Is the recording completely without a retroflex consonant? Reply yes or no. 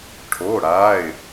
no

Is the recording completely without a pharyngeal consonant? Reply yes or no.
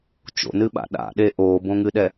yes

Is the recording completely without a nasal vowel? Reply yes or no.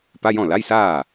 no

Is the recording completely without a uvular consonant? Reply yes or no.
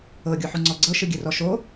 yes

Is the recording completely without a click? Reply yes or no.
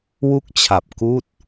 yes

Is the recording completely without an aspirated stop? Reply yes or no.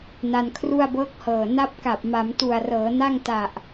no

